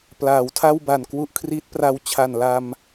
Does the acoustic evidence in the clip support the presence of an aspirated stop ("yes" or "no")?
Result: yes